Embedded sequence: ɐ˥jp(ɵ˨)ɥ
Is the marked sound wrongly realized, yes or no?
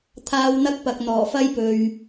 no